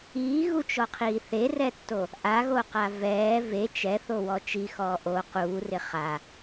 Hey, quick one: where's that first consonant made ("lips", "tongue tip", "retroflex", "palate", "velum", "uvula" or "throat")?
velum